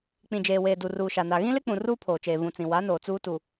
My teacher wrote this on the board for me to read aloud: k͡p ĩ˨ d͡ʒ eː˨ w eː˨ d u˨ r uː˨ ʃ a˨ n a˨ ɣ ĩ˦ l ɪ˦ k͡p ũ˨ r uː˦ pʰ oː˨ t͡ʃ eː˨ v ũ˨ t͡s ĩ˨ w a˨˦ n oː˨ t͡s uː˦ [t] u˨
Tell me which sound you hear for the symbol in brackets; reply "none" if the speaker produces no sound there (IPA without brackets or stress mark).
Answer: t